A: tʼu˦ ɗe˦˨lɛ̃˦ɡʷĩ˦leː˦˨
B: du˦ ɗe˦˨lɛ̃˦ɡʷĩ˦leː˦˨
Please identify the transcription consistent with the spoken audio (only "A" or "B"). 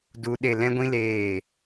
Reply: B